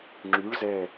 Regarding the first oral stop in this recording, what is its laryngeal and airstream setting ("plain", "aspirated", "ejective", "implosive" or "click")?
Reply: click